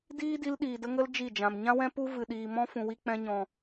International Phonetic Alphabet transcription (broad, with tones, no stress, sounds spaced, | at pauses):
d iː˦ d i˧ l ɗ iː˨ d ə˧ ŋ ə˦ l d͡ʒ i˦˨ d͡ʒ ã˨ m ɲ ã˦ w ɛ̃˦ p u˦ v ɨ˨ ɗ iː˨ m ɔ̃˦ f ũ˨ w i˧ k͡p ɛ̃˧ ɲ ɔ̃˨